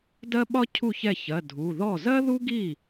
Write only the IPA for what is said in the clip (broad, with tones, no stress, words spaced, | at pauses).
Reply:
dɜ˥ɓɒ˥cʰu˥˩ çɛ˥˩çɜ˩˧˩ dʱu˩˧˩ðɔ˥˩ zɜ˥ðu˥ɡi˥˩